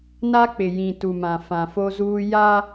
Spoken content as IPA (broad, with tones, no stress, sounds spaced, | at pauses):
n a˦ k͡p ɪ˨ j ĩ˨ t u˨ m ã˨ f ã˨ f o˦ z uː˦ j a˦